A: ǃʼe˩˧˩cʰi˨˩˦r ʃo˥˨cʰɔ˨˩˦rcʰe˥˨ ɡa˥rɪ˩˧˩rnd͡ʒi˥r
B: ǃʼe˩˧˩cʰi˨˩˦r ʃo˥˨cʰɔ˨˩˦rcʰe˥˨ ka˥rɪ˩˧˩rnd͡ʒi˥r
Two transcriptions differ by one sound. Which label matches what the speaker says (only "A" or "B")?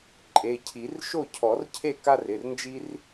B